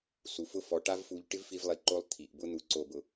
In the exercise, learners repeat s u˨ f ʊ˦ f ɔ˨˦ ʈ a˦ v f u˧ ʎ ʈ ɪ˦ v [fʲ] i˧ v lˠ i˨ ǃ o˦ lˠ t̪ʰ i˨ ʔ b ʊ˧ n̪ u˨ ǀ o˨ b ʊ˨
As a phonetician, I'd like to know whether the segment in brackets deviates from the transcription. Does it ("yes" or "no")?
yes